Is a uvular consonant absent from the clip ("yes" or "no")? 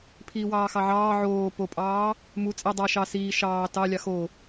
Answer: yes